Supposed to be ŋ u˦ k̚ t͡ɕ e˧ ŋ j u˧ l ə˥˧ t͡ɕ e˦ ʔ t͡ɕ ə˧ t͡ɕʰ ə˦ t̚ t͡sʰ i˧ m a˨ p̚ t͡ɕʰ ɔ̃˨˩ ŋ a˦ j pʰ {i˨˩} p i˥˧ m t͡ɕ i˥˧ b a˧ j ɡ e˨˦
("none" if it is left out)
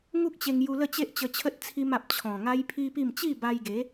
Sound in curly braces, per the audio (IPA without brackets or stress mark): i˦